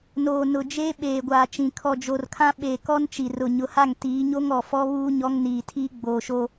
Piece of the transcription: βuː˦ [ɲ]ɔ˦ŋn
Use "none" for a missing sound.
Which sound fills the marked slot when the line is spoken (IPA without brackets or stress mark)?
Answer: ɲ